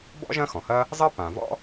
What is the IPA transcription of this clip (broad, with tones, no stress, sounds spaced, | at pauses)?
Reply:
b ɔ̰˥ ʒ ɐ̃˥ x ɔ̃˩ h ɐ˥ | zˤ ɐ˥ p ã˩ v ɔ̰˥